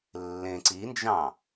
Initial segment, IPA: lː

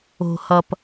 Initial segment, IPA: o̤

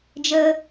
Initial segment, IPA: d͡ʒ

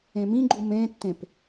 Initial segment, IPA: ẽ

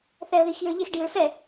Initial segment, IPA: θ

